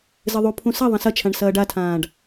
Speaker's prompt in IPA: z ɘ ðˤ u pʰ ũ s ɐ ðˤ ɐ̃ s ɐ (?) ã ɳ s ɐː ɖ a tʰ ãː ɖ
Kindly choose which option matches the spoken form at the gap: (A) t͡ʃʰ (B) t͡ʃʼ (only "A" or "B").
A